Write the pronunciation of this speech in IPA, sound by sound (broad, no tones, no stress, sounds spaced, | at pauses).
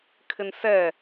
kʰ ɪ n s ɛ